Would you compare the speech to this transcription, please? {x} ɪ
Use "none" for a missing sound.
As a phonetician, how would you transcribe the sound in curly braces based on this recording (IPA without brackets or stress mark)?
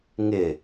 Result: ŋ